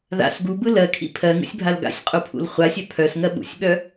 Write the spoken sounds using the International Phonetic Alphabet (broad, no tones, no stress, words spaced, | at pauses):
ða̰s ɡubɯ lɜkʰḭ pʰɜŋṵsʲbʱal ɡa̰sʲqʼupʰṵl χʷasʲœ pʰœsŋɜ ɓṵsʲɓœ